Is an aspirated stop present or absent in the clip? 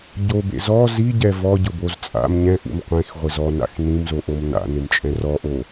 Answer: absent